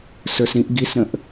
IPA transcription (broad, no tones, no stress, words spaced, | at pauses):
sə˞sɾĩʔ ɡisɾə̃ʔ